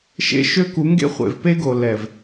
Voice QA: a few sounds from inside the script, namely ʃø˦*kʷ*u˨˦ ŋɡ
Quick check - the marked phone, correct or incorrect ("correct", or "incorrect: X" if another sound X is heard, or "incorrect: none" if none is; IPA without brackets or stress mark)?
incorrect: k